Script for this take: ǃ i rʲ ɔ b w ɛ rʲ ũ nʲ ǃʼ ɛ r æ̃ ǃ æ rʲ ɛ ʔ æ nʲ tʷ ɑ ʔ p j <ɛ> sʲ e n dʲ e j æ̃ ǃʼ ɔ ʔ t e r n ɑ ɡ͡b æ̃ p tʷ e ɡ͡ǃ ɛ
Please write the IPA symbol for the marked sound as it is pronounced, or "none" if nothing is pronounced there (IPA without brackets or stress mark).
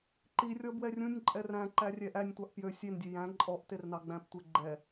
ø